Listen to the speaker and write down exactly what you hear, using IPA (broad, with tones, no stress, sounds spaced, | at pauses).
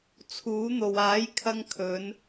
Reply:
t͡sʰ uː˨˥ n̪ o˨ w aː˨˥ j kʰ ɐ˧ ŋ kʰ ɵ˨˧ n